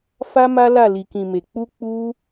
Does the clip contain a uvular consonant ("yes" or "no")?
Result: no